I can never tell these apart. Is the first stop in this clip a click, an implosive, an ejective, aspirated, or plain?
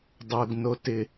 plain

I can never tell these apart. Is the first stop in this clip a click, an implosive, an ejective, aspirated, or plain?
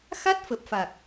plain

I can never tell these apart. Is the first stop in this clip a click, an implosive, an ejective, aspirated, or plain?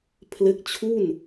aspirated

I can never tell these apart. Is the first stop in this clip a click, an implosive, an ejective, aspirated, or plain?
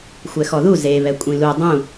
ejective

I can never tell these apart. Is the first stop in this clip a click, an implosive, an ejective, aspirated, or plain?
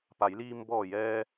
plain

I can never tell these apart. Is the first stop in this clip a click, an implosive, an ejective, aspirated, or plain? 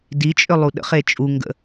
plain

